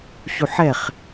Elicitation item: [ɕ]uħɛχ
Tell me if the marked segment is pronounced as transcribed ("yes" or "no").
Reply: yes